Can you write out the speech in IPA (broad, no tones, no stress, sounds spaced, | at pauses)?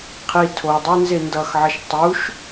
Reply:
qʰ i tʰ o dˤ i n z e n d ʌ x ʕ ʌ ʃ tˤ u ʃ